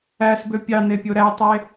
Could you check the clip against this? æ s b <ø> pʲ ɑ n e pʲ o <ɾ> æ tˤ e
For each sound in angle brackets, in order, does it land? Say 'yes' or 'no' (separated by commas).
yes, yes